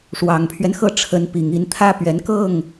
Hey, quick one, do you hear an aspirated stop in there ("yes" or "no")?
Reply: yes